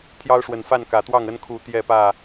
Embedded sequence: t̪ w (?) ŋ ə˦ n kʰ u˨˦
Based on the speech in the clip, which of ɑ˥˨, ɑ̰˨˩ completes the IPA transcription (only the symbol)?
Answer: ɑ˥˨